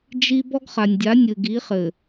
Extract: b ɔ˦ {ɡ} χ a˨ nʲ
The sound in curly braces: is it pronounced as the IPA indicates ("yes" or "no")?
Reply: yes